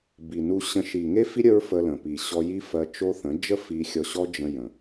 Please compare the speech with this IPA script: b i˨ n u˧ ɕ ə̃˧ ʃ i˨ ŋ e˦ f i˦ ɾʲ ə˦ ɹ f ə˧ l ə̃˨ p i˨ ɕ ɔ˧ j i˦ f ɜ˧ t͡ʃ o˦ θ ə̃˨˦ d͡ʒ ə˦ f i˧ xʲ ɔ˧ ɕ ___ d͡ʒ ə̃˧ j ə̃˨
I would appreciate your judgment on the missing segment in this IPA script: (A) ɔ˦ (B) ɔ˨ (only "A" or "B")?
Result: A